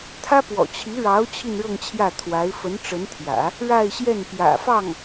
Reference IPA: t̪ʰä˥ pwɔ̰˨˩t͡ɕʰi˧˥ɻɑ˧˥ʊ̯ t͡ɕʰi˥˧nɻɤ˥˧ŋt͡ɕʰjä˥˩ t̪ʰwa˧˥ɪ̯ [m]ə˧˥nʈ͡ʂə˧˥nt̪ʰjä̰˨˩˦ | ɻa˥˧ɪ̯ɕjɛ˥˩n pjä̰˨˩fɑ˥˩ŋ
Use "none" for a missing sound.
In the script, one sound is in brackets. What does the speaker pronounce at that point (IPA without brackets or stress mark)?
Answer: f